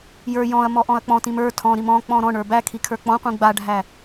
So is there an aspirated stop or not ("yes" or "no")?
yes